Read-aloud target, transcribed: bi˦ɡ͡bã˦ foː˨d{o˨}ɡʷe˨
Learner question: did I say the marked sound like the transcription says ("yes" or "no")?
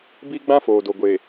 yes